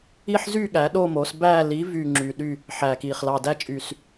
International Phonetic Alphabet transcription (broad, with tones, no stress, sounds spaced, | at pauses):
i˥˨ ħ z y˥˨ ɠ æ˩˥ ɗ o˥˨ m o˩˥ s b æː˥˨ l i˩˥ v y˨˩ ŋ͡ǁ y˨˩ ɗ y˥˨ | ħ æ˨˩ k iː˨˩ χ l ɑ˨˩ d æ˥˨ t͡ʃʼ y˨˩ s